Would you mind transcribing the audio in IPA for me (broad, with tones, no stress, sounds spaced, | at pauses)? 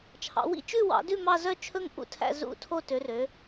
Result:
t͡ʃʰ ɑ̰˨˦ w ḭ˥˧ t͡ʃ ʉ˥˧ w ɑ̰˨˦ d ʉ˥˧ m ɑ˥˧ z œ˥˧ t͡ʃʰ ɵ˥˧ ŋ ʔ ṵ˥˧ tʰ æ̰˥˧ z ṵ˥˧ tʰ o˥˧ t ø˨˦ r ø˨˦